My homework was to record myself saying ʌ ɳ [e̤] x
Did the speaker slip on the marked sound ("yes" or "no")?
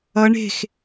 no